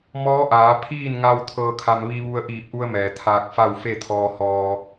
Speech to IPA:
m ɔː˧˥ ʔ aː˩˧ pʰ iː˥˨ n ŋ a˧ w t̪ʰ ɤː˧ kʰ a˧ m ʋ i˧ ʋ u˧ ə̯ ʔ iː˧˩ p̚ ʔ u˧ ə̯ m ɛː˩ t̪ʰ aː˧ k̚ f a˥˨ w f e˥˨ t̪ʰ ɔː˧ h ɔː˧

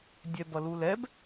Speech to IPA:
dʲ ɛ b ʌ l u l ɛ b

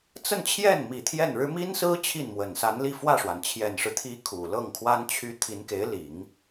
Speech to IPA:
t͡s ə˥˧ n t͡ɕʰ j ɛ˥˩ n m i˨˩ t̪ʰ j ɛ˥˩ n ɻ ɻ̩˥ m i˥ n s ɹ̩˥ t͡ɕʰ i˥˩ n m w ə˨˩ n s a˧˥ n l i˥˧ f w ä˥˩ ʂ w a˩ n t͡ɕʰ j ɛ˨˩ n ʂ ɻ̩˦ t̪ʰ i˧˥ kʰ u˨˩ l ɤ˥˩ ŋ kʰ w a˥ n t͡ɕʰ y˥ t̪ʰ i˧˥ n k e˧˥ ɪ̯ l i˨˩˦ ŋ

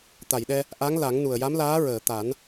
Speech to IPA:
t̪ a˨˩˨ j ɗ ɛ˧ | ʔ a˧˥ ŋ l a˨˩˦ ŋ n u˨˩ ə̯ j a˧˥ m l aː˧˥ ɹ əː˨˩˨ t̪ a˨˩˦ n

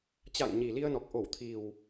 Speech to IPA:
t͡ɕ a̰ː˧˨ ŋ ɲ i˨˩ l i˧ ə̯ n ɔ˨˩ k̚ ʔ o˧˩ w t̪ʰ i˨˩ w

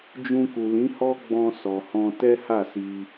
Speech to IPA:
d͡ʒ ũ˧ k u˨ l ĩ˨˦ h ɔ˦ ɡ͡b ɔ̃˧ s ɔ˨ h ɔ̃˧ t ɛ˦ h a˦˨ s i˧

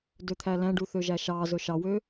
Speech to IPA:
d ø t̪ʰ æ l æ̃ ɖ u θ ø ʒ æ ʃ ɑ z ɵ ʃ ɑ w ø

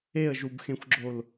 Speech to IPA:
e ə̯ ʒ u b x ẽ xʷ ɡ͡ǁ o l

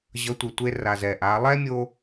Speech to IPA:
ʑ ʌ˨˦ tʷ i˨ tʷ e˧ r a˨ z ɛ˨ ʔ a˨˦ lˠ ɛ˦ mʲ o˦

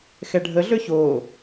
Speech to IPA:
x ɛ ɖʱ ə ɮ ø ç oː

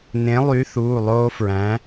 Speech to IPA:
n ẽ˨˥ lˠ y˨˥ θ uː˩˧˩ lˠ oː˦ f ɹ æ̃˨˥

